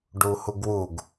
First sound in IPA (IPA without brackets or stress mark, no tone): ɖ